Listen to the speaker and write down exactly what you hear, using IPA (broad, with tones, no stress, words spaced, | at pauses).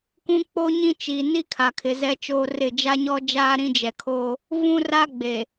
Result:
kũ˦k͡po˦ ɲĩ˦t͡ʃi˨ ni˦kʰa˨kʰɪ˨ zɛ˦t͡ʃoː˦rɪ˦˨ d͡ʒa˦ɲɔ˦d͡ʒaː˦ ɾĩ˦d͡ʒɛ˨kʰoː˦ | vũ˦ra˦ ɡ͡be˨